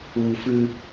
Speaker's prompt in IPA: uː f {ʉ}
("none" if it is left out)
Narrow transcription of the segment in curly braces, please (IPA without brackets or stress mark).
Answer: ʉ